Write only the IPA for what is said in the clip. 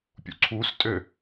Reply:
pʲṵǀʰus tʼø

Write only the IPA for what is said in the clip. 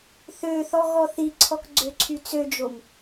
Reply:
θøθɔɣɔ θiǀʰɔkɡ͡ǀøǀʰy t͡sød͡ʒom

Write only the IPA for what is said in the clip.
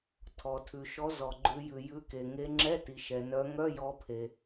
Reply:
tʰɔ˩tʰʉ˩ʃɔ˨˦ zɔ˩ɡ͡ǃʉ˨˦jʉ˩ jʉ˨˦ke˩ ŋe˨˦ŋ͡ǁɛ˧˥˧ti˩ ʃɛ˩nœ˨˦ ŋœ˧˥˧jɔ˨˦pʰe˩

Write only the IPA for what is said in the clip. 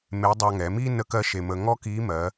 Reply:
me˧˥ dˤɑ˧ŋɛ˩˧mi˥ nə˥kɜ˥ʃe˧mə˧ ŋɔ˥ki˧˥ mɜ˩˧

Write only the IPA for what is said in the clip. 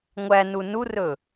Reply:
ŋʷæ nunurɵ

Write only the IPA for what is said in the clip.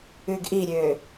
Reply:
ʉɡʔiɾʲø

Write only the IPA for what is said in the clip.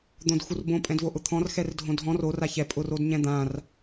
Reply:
d̪õdxurbõ pʼɛ̃dvoʔʊt̪ʰɔ̃r xɛrdʱõdʱɔ̃r o raçɛ pʼʊrodɲɛ̃d̪ãr

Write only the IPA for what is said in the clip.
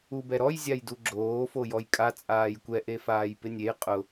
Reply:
ubɛɾɔj zʲajduɡ͡ǁoː fojɔjkʼa t͡sʼaːjkʷɛ ʔefaːjpɪnʲej qʼʊ

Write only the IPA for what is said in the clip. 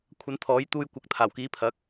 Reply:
kʷʰɐ˨˥nt̪ʰɔː˨˥jt̪uː˧j kʷɐ˨˥k̚t̪ʰaː˨˩wkiː˨˥pʰɐ˨˥k̚

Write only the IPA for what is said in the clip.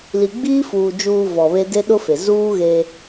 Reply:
li˨ɡ͡biː˦fuː˨ d͡ʒuː˨ vɔ˨βe˦ de˦ɗʊ˦fe˨ zuː˦ ɣeː˦

